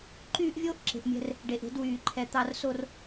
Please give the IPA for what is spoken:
ǃyː˦ʔvʲoː˦ʔǁe̤˨ʔmʲɛ̤˦r | ɖe˨ʔe̤˦d wyː˨ǃʰɛ˨ t̪ɑ˨rso˨r

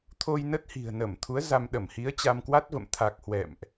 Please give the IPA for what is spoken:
t̪ʰo˧jnə˦˥t̚ hi̤˨˩ə̯ nə˧˩mt̪ʰu˨˦ə̯ za˧mɗə˧˩m hi˨˦ə̯t͡ɕa˧mkwa˦˥t̚və̰˧˨m t̪ʰa˨˩k̚ hwɛ̰˧˨mʔ

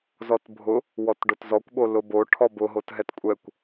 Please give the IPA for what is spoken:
zɔtbʱʊ | wɔtɖotzɔkʷɓo lʊbo ʈʰɔbʊɦotɦɛt kʷʼɛkʷ

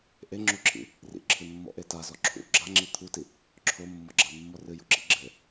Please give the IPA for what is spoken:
ʔeŋ͡ǁuǁʰḭ | rḭǁʰɨmːɔ̰ʔe tazɔ ǁʰṵ ɡ͡ǁaŋ͡ǁi t̪ʰuti | ǁʰomːɔɡ͡ǁamːɔ rɨjṵǁḭ ɡ͡ǁɘ

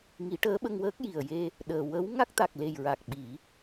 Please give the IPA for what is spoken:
ŋi˨˩˦ʈəː˧˥ɓə˧ŋwəː˦˥k̚ ji˨˩ə̯je˧ | ɗəː˨˩ wə˧˥w ŋa˦˥k̚t̪a˨˩k̚le˨˩jɹa˨˩k̚ ɓi˨˩˦

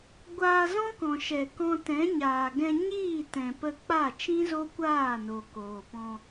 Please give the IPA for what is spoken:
ɡʷaː˧zɔ̃˦kɔ̃˨ʃɛ˨ kɔ̃˧tɛ̃˨˦ɲaː˨ ɡɛ̃˧ɲiː˦˨tɛ̃˨ pə˧k͡pa˦˨ t͡ʃĩ˦zo˦ kʷaː˦˨no˨ koː˨pɔ̃˧

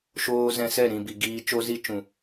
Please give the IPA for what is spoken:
ʃoː˦ zɛ̃˧sɛ˦˨ ɾĩ˨ bi˨ɡiː˧t͡ʃo˦ zi˧ t͡ʃũ˨

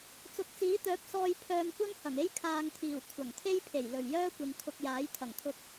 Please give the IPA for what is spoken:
t͡sʊ˨k̚t͡siː˨˥t̪œː˨˥p̚sɔː˧j pʰœː˧mkʷɐ˥ŋhɐ˨˩ŋe˥j kʰaː˧ŋt̪ʰiː˨˩w kʷʰɐ˨˩ŋt̪ʰe˥jpʰe˨˩j lɵ˨˩ɥjœː˥kʷɪ˨ŋ kʰʊ˧k̚jaː˨˥jt̪ʰɐ˨˩ŋt̪ʰʊ˧k̚

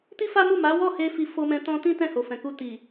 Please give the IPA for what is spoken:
ti˦fa˦mu˦˨ ma˨˦wɔ˦˨he˧ fi˧fo˧mɛ̃˧ tɔ̃˧tĩ˦ tɛ̃˦˨ho˨fɛ̃˨ku˧ ti˨

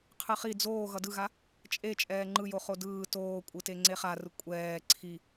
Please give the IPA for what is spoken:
qʰɯχi d͡zoː ɣʌdɯɣa | t͡ʃʼe t͡ʃʼɛːŋ͡ǃɯjoχo dɯː toːkʷʼɯte ŋ͡ǀeχarɯ kʷʼɛː ǀʰi

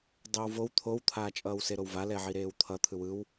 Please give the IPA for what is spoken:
dˤowvow t̪ʰowt̪ʰaː t͡ʃʼʌːwseɾowva lɛʕiɾeːwt̪ʰʌ t̪ʰɯwɯw

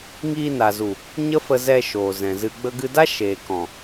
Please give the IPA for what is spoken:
ŋiː˧na˨zu˨ | ɲə˦fə˧zɛ˧ ʃoː˨zɛ̃˨zɨ˧ ɡ͡bə˧ɡɨ˧da˦ ʃeː˨kɔ̃˨

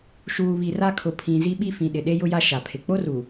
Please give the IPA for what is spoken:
ʃuː˨βi˨ra˦kʰʊ˨ pʰĩ˨ zi˦ɓi˦fĩ˨ɗɪ˨ ɗe˦jʊ˦ja˦ ʃa˨pʰɪ˨ k͡po˦ruː˨

